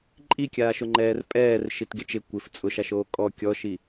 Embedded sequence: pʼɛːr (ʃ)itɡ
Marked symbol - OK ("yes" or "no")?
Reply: yes